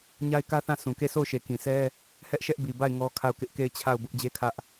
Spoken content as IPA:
ɲ a˦ ɪ̯ k ä˦ θ ã˦˨ sʰ ũ˨ k e˦˨ sʰ o˦˨ ʊ̯ ʃ e˨ k ĩ˨ sʰ ɛ˦ | h ɛ˦ ʔ ʃ ɛ˦ ʔ b i˨ b a˦˨ ɪ̯ ŋ ɔ˦ kʰ a˦˨ ʊ̯ k ɪ˦ ʔ k e˦˨ ɪ̯ t͡ɕʰ a˦˨ ʊ̯ b ʊ˦ ʔ d͡ʑ e˦ kʰ ä˦ ʔ

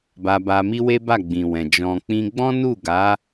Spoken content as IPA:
b a˧ b a˧ m i˦ w e˦ b a˦˨ ɡ͡b ĩ˨ w ɛ̃˨ d͡ʒ ɔ̃˨ k͡p ĩ˧ ɡ͡b ɔ̃˦ n u˦˨ ɡ a˨˦

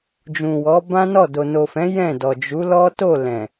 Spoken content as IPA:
d͡ʒ ũ˨ w ɔ˨˦ b ã˦ n ɔ˦˨ d o˨ n o˨ f ɛ̃˨˦ j ɛ̃˦˨ d ɔ˨ d͡ʒ u˨˦ l ɔ˦ t o˦˨ l ɛ̃˨

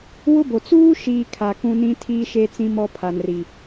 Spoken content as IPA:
w ʊ˦ b o˨ t͡s uː˦ ʃ iː˨ kʰ a˨ k ũ˦ n ĩ˦ tʰ iː˦ ʃ e˦ t͡s ĩ˦ m ɔ˦ pʰ a˨ n r i˨

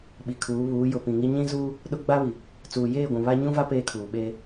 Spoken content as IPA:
ɓ i˨ kʰ uː˨˦ β uː˨˦ j ʊ˨ p ĩ˨ ŋ i˦ ɲ ĩ˦ z uː˦ | ɗ ʊ˦ ɡ͡b a˦ β i˨ | t͡s uː˨ j eː˦˨ ɡʷ ũ˨ β a˦ ɲ ũ˦ v a˦ p eː˦ kʰ uː˨ ɓ eː˦

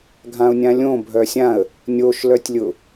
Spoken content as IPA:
ɡʱ ã ʊ̯ nʲ ã lʲ õ bʱ œ sʲ ã ə̯ | nʲ o ʃ l œ tʲ lʲ ʊ

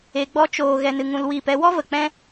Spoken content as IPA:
e˧ ɡ͡b ɔ˦ t͡ʃ oː˧ ɣ ɛ˧ n ɨ˧ ŋ ũ˧ l w iː˦˨ p ɛ˧ w ɔ˦ v ə˨ k͡p ɛ̃˦

